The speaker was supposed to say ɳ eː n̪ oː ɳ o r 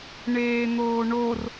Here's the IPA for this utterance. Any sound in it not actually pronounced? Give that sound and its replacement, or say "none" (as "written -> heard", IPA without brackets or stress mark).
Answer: none